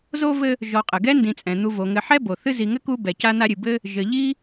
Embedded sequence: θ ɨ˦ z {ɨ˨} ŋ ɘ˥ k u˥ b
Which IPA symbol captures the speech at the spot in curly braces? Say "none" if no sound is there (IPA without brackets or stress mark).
i˨